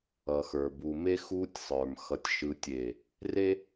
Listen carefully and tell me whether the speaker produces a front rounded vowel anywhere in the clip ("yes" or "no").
no